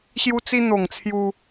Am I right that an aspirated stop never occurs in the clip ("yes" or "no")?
no